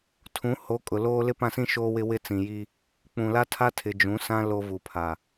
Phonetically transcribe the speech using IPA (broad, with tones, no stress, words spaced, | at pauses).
tʰũ˨˦ ho˨˦ kʼʊ˨loː˦ lɪ˦pã˦˨sĩ˦ ʃoː˦wɪ˦ wɪ˦t͡sĩ˨ji˦ | k͡pũ˨la˦tʰa˦tʰɪ˨ d͡ʒũ˨˦sã˦ lo˦ vu˨pʰa˨